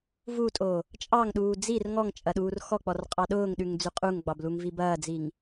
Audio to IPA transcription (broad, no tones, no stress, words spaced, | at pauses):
vutʼo | t͡ʃʼɑŋɗuː d͡zir ŋɔŋt͡ʃʼɐ ɗuːrxɔk͡pɔr qʼɑɗʊːŋɗʉŋ d͡zʉqʼuŋɡ͡bɑb luŋvibɐːd͡ziŋ